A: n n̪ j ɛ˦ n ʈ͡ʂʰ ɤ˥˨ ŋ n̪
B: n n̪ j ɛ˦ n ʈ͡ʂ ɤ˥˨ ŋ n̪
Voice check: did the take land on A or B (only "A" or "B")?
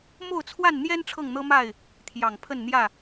A